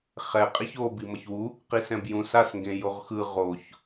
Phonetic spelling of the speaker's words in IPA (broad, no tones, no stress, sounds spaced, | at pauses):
χ ɛ qʼ e ç o b i m ʌ ç w u | q i s ɛ̃ b j ũ s a s ŋ ɡ ẽ j o ʁ x ɯ ʁ o ç